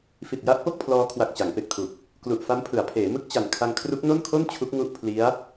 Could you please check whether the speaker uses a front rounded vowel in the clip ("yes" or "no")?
no